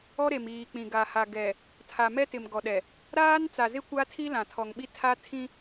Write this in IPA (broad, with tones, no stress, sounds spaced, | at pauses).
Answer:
ɔ˦ ɾ e˨ m iː˨ k͡p ĩ˨ ɡ a˨ h a˨ ɡ ɛ˨ | tʰ a˨ m ɛ˦ t ɪ˨ m ɡ ɔ˨ ɗ ɛ˨ | ɾ aː˦ n t͡s a˨ z ɪ˦ kʷ a˦ tʰ i˦ l ã˨ tʰ ɔ˨ ŋ ɓ i˦ tʰ a˦ tʰ ĩ˦